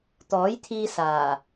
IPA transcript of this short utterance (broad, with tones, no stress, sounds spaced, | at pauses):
t̪ ɔː˨˥ j t̪ʰ iː˧ s aː˨˩